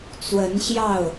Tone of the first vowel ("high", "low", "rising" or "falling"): rising